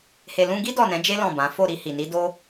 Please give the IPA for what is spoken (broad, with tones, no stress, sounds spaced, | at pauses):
h e˨ l ũ˧ ɡ i˦ d ɔ˦˨ n ɛ̃˨˦ d͡ʒ e˦ l ɔ̃˦˨ b ã˨˦ f o˦˨ ɾ i˧ h i˨ n i˨˦ d o˦